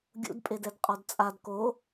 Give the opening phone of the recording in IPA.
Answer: ɡʲ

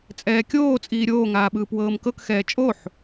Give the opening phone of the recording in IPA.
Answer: t͡sʼ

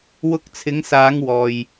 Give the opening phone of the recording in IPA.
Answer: w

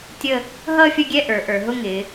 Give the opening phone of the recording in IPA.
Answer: tʲ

